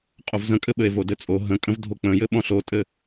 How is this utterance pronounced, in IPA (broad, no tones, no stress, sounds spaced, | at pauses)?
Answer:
qʼ o v z ə̃ kʼ ɘ ɓ ɘ e̯ v o d ɘ t͡sʼ o ɦ ə̃ kʼ ə̃ v dʱ o k͡p ə̃ j ɘ ɓ ɔ̃ ɬ o tʼ ɘ